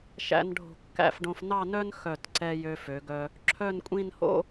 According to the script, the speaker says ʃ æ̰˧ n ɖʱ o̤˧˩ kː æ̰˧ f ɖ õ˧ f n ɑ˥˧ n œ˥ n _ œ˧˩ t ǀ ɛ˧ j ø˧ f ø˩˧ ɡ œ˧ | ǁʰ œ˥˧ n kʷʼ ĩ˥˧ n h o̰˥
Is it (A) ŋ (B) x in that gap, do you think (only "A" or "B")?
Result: B